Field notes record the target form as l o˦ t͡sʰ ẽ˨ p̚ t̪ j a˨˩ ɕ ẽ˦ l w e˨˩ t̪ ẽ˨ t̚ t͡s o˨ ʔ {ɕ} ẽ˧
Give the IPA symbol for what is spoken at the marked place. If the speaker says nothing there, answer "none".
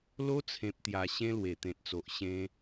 ɕ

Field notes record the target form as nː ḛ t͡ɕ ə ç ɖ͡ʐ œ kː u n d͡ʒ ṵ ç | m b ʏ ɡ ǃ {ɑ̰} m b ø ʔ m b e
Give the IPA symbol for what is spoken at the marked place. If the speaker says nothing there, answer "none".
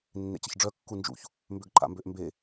a̰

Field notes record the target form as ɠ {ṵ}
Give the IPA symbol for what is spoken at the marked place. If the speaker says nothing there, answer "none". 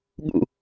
ṵ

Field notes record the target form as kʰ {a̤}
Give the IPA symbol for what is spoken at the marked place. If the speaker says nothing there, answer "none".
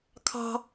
ɑ̤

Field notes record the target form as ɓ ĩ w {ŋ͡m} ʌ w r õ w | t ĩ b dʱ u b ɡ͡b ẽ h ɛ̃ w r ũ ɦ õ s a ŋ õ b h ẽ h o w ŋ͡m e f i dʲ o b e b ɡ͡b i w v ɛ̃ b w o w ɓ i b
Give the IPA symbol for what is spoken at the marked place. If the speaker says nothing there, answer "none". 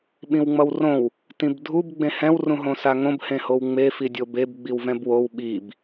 ŋ͡m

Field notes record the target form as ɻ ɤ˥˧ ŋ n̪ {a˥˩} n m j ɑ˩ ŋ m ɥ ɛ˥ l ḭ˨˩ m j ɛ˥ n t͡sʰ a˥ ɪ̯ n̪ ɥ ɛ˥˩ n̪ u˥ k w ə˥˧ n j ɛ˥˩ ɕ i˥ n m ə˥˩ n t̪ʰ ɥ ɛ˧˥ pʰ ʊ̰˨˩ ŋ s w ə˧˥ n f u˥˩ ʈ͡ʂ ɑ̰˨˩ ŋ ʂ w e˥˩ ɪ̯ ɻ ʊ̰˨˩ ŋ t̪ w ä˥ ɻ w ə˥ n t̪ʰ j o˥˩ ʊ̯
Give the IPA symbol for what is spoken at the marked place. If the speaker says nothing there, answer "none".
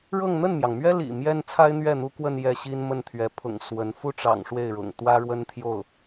ə˥˩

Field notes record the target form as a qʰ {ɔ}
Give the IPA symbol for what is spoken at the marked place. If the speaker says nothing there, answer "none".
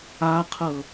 ɤ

